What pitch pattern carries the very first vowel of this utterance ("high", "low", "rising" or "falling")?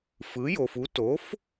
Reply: rising